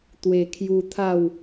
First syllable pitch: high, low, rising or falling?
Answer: low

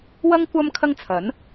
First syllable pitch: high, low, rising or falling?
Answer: high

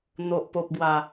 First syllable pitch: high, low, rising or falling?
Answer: low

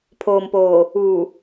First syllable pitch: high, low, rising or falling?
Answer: low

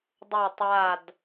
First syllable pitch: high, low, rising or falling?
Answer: falling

